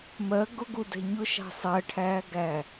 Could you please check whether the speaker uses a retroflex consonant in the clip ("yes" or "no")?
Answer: yes